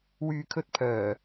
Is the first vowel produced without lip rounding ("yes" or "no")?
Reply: no